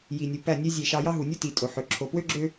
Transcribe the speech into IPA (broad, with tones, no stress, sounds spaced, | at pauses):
j i˨ nʲ u˨ p æ˦˨ nʲ ø˦ zʲ e˦˨ ʃ ɑ˦ j ɑ˦ ɦ u˨ nʲ u˦ t i˨ tʼ o˨ ħ ø˨ ǁʰ o˨ p w ø˦ ɡ͡ǁ ø˦